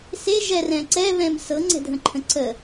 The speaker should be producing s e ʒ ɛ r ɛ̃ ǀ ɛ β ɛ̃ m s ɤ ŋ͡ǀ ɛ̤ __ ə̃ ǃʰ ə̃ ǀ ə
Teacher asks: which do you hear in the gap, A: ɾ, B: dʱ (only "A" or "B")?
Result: B